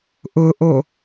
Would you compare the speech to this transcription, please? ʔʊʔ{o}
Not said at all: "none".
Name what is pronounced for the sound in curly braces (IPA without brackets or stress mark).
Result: o